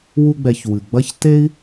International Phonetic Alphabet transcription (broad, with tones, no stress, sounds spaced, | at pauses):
w u˧ ɡ͡b ɛ˨ ç w ɨ˨ ɡ͡b ɐ˦ ç t e˦ i̯